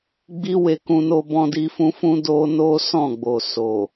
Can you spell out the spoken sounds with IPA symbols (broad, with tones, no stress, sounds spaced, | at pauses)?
ɡ͡b i˦ w e˧ k ũ˧ n o˧ b ɔ̃˧ d i˦ f ũ˦ f ũ˦ d o˦ n o˦ s ɔ̃˦˨ ɡ͡b o˨ s o˨